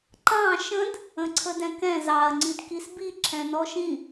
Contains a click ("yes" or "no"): yes